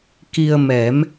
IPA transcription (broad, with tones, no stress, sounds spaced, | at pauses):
k i˧ ə̯ m ɛ˨˩˦ m